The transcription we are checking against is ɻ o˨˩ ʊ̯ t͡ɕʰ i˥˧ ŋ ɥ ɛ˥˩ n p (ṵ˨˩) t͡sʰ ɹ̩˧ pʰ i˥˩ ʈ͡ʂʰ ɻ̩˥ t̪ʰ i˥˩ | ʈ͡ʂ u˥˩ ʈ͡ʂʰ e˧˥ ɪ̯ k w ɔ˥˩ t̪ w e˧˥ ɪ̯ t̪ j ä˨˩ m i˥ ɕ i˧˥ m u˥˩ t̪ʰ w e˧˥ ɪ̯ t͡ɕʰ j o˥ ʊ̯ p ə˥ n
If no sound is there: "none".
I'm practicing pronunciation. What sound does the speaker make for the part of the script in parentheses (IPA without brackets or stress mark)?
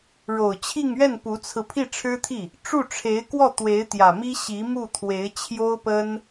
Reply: u˧˥